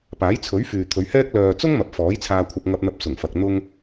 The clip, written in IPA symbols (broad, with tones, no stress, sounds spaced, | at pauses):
p aː˨˥ j t͡sʰ ɵ˨˥ ɥ f yː˨ t̪ʰ ɵ˨˧ ɥ h ɛː˥ k̚ l œː˨ t͡s ʊ˥ ŋ m ɐ˨˥ p̚ f ɔː˨˥ j t͡sʰ aː˧ kʷʰ ɐ˧ p̚ ŋ ɐ˧ p̚ n̪ ɐ˧ p̚ s ʊ˨˩ ŋ f ɐ˨ k̚ n̪ ʊ˥ ŋ